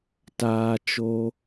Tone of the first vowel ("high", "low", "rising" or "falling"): low